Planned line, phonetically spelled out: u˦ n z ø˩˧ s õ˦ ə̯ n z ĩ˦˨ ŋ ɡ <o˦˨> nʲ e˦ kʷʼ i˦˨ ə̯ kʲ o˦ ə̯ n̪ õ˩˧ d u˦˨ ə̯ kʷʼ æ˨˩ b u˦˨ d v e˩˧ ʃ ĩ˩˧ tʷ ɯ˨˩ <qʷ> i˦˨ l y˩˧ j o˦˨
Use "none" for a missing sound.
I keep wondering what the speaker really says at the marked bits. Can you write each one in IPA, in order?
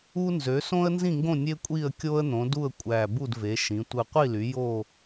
õ˦˨, qʷ

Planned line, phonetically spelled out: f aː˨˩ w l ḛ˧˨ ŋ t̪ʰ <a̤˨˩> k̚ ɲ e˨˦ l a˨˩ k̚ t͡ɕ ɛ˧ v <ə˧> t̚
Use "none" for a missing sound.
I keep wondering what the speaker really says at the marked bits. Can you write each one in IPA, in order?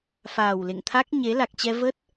a˦˥, ə˦˥

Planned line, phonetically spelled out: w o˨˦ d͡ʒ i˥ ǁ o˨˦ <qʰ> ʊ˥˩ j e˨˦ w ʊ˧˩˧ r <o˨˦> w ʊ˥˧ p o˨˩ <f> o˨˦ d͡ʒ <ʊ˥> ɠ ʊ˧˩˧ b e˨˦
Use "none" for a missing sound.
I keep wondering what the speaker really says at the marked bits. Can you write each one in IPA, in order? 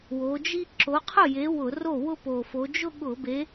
qʰ, o˥˩, f, ʊ˥˧

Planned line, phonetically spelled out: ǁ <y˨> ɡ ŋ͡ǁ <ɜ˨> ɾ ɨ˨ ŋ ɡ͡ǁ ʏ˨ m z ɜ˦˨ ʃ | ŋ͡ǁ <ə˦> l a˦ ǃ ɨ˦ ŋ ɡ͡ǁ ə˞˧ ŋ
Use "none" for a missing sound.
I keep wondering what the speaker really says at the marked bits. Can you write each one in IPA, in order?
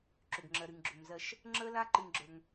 ʏ˨, ɜ˨, ə˦

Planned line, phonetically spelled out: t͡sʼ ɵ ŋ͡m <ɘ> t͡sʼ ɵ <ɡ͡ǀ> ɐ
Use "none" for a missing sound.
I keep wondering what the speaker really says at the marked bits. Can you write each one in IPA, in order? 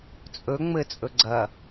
ɘ, ɡ͡ǀ

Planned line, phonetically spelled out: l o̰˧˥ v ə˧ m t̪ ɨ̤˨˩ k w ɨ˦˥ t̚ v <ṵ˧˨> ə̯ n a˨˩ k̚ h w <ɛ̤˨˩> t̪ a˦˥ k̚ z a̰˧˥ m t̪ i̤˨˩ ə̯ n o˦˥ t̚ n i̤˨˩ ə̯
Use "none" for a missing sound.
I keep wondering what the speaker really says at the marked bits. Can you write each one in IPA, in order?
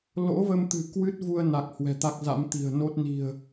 u˧, ɛ̤˨˩

